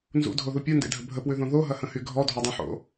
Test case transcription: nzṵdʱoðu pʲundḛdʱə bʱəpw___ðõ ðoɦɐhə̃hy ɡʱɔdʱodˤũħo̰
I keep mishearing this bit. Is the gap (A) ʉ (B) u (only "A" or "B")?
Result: A